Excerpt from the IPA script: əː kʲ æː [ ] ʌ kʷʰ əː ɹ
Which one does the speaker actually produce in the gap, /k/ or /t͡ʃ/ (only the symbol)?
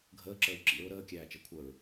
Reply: t͡ʃ